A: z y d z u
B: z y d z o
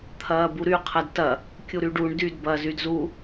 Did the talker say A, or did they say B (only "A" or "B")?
A